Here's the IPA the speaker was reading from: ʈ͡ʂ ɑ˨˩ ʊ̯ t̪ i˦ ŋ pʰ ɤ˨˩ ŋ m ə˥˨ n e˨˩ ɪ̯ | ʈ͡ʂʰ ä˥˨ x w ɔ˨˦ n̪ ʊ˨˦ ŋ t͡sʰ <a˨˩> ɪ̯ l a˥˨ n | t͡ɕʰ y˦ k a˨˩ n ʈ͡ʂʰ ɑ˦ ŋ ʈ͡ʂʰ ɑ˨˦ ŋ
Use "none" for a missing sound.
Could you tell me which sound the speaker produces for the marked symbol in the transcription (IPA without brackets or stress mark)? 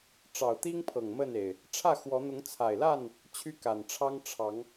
a˨˩